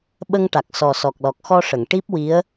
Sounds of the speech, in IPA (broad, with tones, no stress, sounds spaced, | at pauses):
ɓ ə˧ ŋ ʈ a˨˩ k̚ s ɔ˨˩ s ɔ˨˩ k̚ l ɔ˨˩ k̚ x ɔ˧ ʂ ə˨˩˨ ŋ ʈ i˦˥ p̚ w i˧˥ ə̯